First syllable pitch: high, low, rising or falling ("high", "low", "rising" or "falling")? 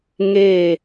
falling